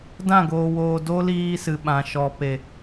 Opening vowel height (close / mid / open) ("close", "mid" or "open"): open